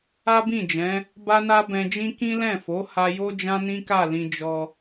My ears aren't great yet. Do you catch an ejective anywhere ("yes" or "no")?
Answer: no